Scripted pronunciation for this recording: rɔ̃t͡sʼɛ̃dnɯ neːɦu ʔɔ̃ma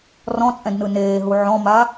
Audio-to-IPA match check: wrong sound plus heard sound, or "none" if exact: ʔ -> ʕ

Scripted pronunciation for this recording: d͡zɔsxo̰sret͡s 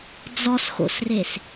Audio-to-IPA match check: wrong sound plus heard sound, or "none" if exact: t͡s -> s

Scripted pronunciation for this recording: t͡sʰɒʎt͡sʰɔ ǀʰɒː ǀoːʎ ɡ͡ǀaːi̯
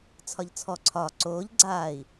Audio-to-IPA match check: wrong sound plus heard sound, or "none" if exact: none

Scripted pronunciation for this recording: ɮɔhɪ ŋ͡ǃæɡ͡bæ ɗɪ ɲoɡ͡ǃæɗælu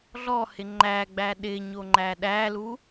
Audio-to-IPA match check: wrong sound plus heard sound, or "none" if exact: ɡ͡ǃ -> ŋ͡ǃ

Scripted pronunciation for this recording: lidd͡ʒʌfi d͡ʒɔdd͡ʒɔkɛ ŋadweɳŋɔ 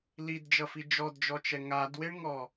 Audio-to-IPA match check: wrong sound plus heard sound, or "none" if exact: k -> t͡ʃ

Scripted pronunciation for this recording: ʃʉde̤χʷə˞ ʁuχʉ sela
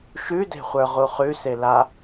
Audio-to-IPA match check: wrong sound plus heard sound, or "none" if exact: none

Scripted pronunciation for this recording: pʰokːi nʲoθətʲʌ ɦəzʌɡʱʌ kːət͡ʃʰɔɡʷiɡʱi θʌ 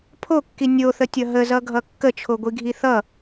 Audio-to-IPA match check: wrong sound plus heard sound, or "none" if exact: ɔ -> o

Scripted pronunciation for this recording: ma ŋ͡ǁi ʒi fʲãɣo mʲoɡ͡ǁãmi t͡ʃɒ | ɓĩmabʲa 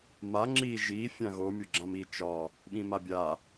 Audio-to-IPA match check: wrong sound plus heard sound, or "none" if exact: none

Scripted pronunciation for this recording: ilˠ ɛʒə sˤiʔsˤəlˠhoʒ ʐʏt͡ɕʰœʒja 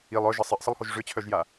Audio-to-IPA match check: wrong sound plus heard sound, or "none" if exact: ɛ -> œ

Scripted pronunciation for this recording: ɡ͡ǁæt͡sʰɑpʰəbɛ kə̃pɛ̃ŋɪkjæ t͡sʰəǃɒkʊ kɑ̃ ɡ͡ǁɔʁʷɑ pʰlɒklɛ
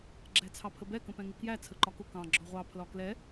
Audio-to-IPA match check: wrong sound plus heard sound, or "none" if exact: none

